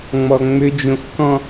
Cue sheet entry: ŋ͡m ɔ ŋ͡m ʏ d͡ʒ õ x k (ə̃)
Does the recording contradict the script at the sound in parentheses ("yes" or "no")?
yes